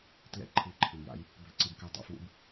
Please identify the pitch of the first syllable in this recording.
rising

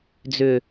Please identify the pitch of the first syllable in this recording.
low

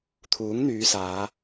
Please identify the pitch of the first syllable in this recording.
rising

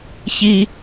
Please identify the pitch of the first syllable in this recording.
high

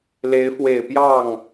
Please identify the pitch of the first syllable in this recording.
rising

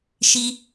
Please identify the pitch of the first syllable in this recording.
high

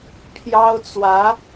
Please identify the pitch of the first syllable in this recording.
high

